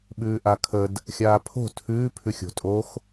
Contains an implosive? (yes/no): yes